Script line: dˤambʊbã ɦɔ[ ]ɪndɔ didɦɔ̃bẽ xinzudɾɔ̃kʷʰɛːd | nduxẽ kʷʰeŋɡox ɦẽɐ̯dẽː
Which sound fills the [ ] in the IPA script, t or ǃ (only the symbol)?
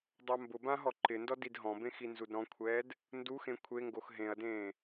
ǃ